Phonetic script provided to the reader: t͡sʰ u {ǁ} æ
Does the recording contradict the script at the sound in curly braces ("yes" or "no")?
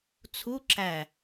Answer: no